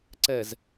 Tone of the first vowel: low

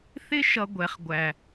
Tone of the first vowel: high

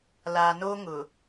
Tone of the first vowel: low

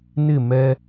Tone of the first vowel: falling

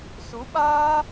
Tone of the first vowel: rising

